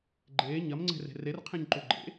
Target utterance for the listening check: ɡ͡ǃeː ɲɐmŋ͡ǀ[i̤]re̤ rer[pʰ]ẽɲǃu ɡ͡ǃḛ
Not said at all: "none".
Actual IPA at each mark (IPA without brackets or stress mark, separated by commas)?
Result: e̤, qʰ